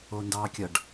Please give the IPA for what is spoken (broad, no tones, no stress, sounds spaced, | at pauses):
o n d ɑː kʲ ʌ ɖ